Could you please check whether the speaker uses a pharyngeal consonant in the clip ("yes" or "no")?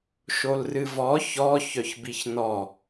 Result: no